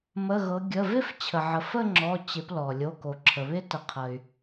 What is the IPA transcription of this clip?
m ə˩˧˩ ɣ ɤ˩˧ ɡʲ ə˩˧˩ v ɪ˥˧ f t͡ɕʰ ə˩ ʕ ə˩ f ə˥˧ ŋ͡ǁ ɔ˩˧˩ t͡ɕ ɪ˩˧ p l ɔ˩ lʲ o˩˧˩ k o˩ ǁʰ ə˩ β ɪ˦˥ t ə˩˧ qʰ ə˩ y̯

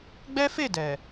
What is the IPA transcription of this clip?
ɡ͡b ɛ˦ f e˦˨ d ɛ˨

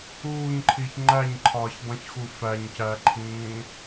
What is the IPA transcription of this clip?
uː ɲ ǃʰ i ç ŋ͡ǃ æ ɲ ǃʰ ɒː ç dˤ ĩ ç x u f æ ɲ c æ ǃʰ ĩː

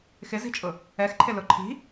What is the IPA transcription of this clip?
x ɪ z i̤ t͡ʃʼ ʊ | ɛ x ǃʰ ɪ l ʊ ǃʰ i̤

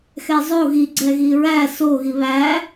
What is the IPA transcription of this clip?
x ɛ zˤ o ɣ i ɡ͡ǀ ɛ ɣ i ɹ æ s o ɣ i β æ

